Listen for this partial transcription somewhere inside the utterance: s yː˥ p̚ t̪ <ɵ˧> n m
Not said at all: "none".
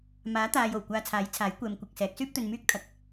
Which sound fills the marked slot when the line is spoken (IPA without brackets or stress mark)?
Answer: ɵ˧